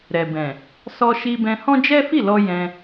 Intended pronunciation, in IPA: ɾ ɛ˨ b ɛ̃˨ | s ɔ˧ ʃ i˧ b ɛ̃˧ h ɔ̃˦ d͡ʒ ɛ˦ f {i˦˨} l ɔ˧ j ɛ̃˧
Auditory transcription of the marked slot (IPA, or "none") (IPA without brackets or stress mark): i˦˨